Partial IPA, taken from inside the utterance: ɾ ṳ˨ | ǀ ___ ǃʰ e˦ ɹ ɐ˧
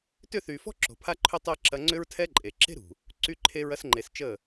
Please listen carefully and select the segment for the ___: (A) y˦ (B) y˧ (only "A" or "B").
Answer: A